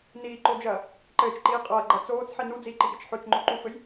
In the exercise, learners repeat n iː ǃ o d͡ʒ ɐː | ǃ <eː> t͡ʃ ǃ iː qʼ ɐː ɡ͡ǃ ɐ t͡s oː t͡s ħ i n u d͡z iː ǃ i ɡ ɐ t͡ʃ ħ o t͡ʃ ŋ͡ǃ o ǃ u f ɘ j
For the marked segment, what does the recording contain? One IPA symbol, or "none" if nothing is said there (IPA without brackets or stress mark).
ɘː